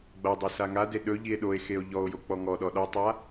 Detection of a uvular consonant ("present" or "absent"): absent